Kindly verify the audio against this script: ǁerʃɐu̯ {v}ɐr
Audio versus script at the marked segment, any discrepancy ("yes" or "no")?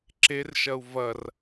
no